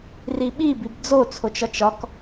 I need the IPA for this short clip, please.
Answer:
r i ɓ i b i b d͡z o t͡sʰ o t͡ʃ ɒ t͡ʃ ɒ k

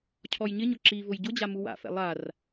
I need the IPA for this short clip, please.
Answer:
cʰ ɔ j ɲ ɪ ɲ ʊ ǁ i v ʊ j ɟ ʊ d͡ʑ a m u w a̰ f ɛ̰ lˠ a r

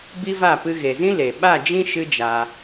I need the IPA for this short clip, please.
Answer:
b i˦ v a˦˨ p ɨ˧ ɣ e˨ z ĩ˦ l e˨ ɓ a˦˨ d͡ʒ ĩ˦ ʃ ɨ˦ d͡ʒ a˧

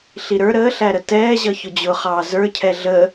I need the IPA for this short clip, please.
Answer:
ɬ i ɾ ə˞ ɾ əː ɬ æ ɾ ə t ɛː ʑ ʌ ç ʊ d͡ʑ ʊ χ ɑː z ə˞ cʰ ɛ ɮ ə

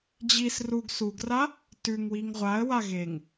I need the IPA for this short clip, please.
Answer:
d͡ʑ i s r u ɡ s u ɡ r a | t ʉ ŋ w i ŋ ʁʷ a ə̯ w a ɣ e ŋ

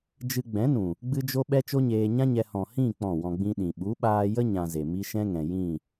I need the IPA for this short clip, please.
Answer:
d͡ʒ ɨ˧ ɡ͡b ɛ̃˨˦ n ũ˨ | ɡ͡b ɨ˦ d͡ʒ o˦ ɓ ɛ˦ t͡ʃ o˦ ɲ eː˧ ɲ ã˦ ɲ ɛ˧ h ɔ̃˨ h ĩ˦˨ k͡p ɔ̃˦˨ w ɔ̃˧ ɡ͡b ĩ˦ ɗ ĩ˨ ɓ u˨˦ ɓ aː˧ j ə˦ ɲ ã˧ z e˨ m i˦ ʃ ɛ̃˦ ŋ ɛ̃˨ j ĩ˦˨

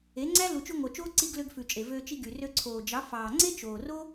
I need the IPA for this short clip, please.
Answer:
e˨˦ ŋ͡ǀ æ˦ l u˨ t͡ʃ ʉ˧ ŋʷ œ˨ t͡ʃ oː˧ ǀ i˧ ɡ l ø˧ ɡ f ʉ˨ t͡ʃʼ e˨ v øː˧ t͡ʃ i˧ ɡ y˨ r ø˧ ǀʰ oː˨ d͡ʒ ɑ˨˦ f ɑː˨ ŋ͡ǀ e˦ t͡ʃ oː˨ r o˦

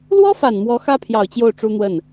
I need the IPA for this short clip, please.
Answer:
l w ɔ˥ f a˨˩ n m w ɔ˧˥ x ä˥ pʰ j ɑ˨˩ ʊ̯ t͡ɕ j o˥˩ ʊ̯ ʈ͡ʂ u˥ n̪ w ə˥˩ n

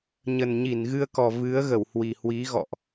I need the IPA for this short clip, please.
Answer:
ɲ ə˨˩ n ɲ i˧˩ n ɣ ɨ˧ ə̯ k ɔ˨˩ v ɨ˨˦ ə̯ ɣ ə˧˩ w h w i˨˩ h w i˨˦ ɣ ɔ̰˧˨ ʔ

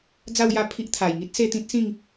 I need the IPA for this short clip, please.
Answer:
d͡z a˥˧ w j a˥˧ pʰ i˦ ʔ t̪ʰ a˨˩ j ŋ i˦ t̚ s e˥˧ t̪ ĩ˦ t̚ s ĩ˥˧ ŋ

